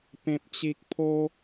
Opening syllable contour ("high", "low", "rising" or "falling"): low